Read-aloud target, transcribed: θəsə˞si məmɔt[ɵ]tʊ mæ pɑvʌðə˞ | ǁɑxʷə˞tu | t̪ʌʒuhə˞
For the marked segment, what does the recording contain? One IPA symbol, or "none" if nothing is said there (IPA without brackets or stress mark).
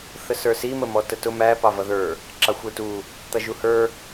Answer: ə